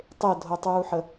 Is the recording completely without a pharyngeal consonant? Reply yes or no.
no